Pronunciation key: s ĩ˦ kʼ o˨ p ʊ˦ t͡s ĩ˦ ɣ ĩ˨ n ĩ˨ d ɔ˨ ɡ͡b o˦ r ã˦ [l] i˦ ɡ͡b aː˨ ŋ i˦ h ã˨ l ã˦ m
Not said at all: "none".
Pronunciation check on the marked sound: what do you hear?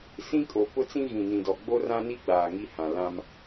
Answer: n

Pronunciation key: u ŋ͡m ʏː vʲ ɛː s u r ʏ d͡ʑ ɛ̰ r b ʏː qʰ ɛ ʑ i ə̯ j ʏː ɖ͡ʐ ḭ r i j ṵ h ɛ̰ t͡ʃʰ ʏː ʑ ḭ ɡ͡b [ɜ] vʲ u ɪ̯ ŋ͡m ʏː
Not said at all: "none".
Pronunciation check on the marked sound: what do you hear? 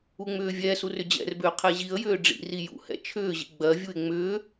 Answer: ɜ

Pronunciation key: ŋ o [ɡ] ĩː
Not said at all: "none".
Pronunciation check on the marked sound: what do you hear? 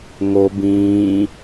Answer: b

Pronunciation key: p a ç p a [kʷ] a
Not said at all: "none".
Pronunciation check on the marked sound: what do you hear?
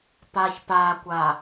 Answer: kʷ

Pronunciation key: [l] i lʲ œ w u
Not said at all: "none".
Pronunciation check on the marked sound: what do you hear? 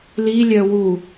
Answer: l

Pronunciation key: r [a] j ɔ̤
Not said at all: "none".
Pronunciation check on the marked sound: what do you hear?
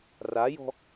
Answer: a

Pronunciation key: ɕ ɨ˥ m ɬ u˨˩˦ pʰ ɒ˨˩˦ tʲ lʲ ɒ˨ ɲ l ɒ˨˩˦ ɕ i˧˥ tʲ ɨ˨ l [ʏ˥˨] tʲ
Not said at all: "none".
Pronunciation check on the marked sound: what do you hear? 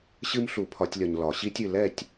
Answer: ɛ˥˨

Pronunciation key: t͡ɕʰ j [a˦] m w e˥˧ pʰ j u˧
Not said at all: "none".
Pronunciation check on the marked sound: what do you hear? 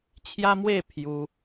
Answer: a˦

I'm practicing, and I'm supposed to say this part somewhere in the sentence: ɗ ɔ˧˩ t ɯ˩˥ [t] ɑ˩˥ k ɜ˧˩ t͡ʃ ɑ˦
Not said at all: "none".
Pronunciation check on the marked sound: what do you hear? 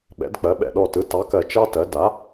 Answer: t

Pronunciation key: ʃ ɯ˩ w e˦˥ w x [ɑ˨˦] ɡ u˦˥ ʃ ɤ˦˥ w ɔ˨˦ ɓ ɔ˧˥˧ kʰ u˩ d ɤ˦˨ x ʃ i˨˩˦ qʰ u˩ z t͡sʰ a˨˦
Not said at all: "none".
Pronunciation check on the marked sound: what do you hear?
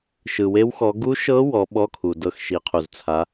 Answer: ɔ˨˦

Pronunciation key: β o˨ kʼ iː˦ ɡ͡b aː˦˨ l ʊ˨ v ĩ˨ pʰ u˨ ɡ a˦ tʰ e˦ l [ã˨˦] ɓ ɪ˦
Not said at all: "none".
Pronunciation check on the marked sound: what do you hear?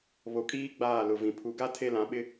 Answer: ã˨˦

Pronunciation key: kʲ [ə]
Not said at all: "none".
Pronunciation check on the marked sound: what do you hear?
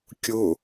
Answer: ʊ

